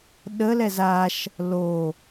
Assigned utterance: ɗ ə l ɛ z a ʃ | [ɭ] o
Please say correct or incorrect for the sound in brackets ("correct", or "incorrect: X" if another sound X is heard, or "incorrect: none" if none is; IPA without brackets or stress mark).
incorrect: l